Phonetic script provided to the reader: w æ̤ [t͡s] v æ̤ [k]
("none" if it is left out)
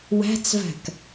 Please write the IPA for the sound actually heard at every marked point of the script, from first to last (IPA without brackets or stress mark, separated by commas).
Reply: t͡s, k